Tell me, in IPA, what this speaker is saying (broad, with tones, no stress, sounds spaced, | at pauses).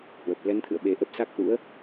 h w ə˨˩ p̚ l ɛ˨˦ n t̪ʰ ɨ̰˧˨ ə̯ ɓ e˨˩ ʔ ə˦˥ p̚ s a˦˥ k̚ ʔ ṵ˧˥ ə̯